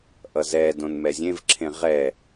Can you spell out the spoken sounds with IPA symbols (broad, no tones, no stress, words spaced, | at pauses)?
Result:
ʔʌzɛdõn mɛzʲẽvǁʰẽ ʁɛ